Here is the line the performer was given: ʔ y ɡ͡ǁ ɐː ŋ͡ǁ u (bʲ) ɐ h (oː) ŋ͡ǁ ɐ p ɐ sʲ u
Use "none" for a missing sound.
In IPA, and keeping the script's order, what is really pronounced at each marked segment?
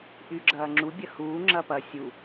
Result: bʲ, uː

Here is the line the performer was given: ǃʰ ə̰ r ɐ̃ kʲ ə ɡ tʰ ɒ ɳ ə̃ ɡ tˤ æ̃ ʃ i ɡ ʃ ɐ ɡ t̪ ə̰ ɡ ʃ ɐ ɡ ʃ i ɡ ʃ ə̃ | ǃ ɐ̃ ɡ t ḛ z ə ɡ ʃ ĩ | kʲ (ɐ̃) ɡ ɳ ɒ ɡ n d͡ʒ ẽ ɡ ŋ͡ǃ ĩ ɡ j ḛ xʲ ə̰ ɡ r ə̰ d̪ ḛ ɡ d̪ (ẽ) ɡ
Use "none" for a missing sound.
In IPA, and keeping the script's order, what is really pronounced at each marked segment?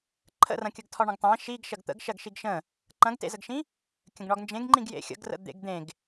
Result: ə̃, ẽ

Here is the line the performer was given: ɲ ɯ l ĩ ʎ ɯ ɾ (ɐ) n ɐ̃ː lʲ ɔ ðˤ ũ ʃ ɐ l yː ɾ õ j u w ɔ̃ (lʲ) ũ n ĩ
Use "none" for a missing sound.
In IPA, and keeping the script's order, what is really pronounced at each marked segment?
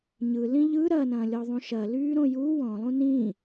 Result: ɐ, lˠ

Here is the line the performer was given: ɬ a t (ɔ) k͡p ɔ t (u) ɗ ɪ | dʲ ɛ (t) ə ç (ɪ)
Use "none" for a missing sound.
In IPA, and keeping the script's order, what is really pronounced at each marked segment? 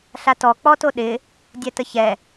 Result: ɔ, o, t, ɛ

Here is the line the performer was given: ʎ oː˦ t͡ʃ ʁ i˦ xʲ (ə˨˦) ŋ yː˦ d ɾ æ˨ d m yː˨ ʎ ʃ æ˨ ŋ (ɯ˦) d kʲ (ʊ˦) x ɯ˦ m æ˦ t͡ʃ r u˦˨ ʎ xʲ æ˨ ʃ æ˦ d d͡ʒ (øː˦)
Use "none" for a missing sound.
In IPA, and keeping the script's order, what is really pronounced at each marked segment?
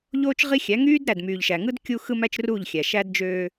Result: æ˨˦, ɯ˦, u˦, øː˦

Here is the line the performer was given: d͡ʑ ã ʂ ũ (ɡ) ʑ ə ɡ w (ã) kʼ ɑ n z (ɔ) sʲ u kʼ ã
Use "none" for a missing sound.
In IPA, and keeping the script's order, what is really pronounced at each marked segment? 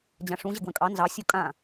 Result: none, ə̃, ɑ

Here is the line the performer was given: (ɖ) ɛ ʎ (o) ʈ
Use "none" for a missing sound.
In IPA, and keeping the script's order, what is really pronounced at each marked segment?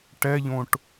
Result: ʈ, õ

